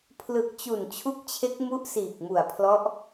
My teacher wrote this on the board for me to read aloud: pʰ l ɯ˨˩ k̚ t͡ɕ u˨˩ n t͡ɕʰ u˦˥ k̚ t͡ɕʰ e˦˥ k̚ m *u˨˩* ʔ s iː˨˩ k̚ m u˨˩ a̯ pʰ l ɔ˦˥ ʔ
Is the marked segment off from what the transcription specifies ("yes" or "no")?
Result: yes